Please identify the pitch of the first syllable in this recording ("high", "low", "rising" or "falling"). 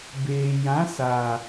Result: low